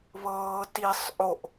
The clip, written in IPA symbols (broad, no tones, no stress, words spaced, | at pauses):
βɤː tisˤ ʔoʔ